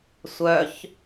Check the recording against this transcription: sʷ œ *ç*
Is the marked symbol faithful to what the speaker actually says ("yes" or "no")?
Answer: yes